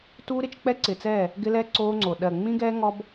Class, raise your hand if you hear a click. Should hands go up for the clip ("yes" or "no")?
yes